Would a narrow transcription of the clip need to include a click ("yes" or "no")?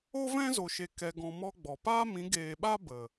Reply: no